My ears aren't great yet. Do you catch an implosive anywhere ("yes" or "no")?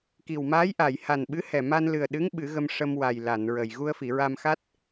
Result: yes